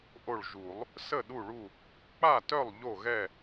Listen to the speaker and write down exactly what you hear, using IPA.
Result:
ʔ o˧˩ ɭ ʒ u˨˩˦ lˠ | s ə˥˨ ɗ u˥˨ ɭ u˥˨ | k͡p a˥˨ t œ˥˨ lˠ ʎ o˥˨ ɣ ɛ˥˨

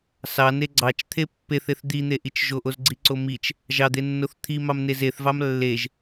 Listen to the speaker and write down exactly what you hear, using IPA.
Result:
s ɑ n e ɡ͡ǀ ɑ t͡ʃ t̪ʰ e pː e θ e θ d̪ i n̪ e ʔ i t͡ʃ ʒ o ʔ o z ɡ͡ǀ i ǀ o m i t͡ʃ | ʒ ɑ d̪ e nː o θ t̪ʰ i m ɑ m n e z e θ v ɑ m lː e ʒ

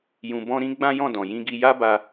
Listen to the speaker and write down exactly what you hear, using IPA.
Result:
j ũ˧ b ɔ̃˦ ɾ ĩ˦ ɡ͡b ã˦ j ɔ̃˦˨ d ɔ̃˨ j ĩ˧ ɡ i˧ j a˦ b a˧

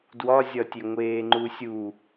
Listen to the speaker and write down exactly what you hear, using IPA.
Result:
d w ɒ zʲ ɒ tʲ e ŋʷ eː ŋ͡ǃ u sʲ u

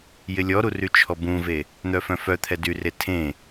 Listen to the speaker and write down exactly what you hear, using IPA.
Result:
j ɪ lʲ ɔ ɾ u r y t͡ʃʰ ɔ b ũ v e | n̪ œ f œ̃ f œ t̪ʰ ɛ d y r e tʰ ẽ

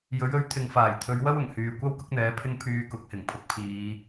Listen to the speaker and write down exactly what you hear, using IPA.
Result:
j ɵ˨˥ ɥ ɵ˨˥ ɥ t̪ʰ ɪ˨ ŋ f aː˨˩ j t̪ʰ ɵ˨˧ ɥ w ɐ˥ w ʊ˨˩ ŋ h yː˨ kʷ ɐ˥ w k ʊ˥ k̚ n̪ ɛː˨˥ pʰ ɪ˥ ŋ pʰ yː˧ k ʊ˨˥ k̚ h ɪ˨˩ ŋ pʰ ʊ˨˥ k̚ pʰ iː˨˧

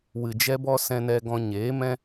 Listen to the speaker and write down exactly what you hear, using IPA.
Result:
w ɨ˨ d͡ʒ ɛ˧ b ɔ˧ s ɛ̃˧ n ɛ˧ ɡ ɔ̃˧ ɲ eː˨˦ m ɛ̃˦

